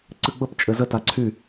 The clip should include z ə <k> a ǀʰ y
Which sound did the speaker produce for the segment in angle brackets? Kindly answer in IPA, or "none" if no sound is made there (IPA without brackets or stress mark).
t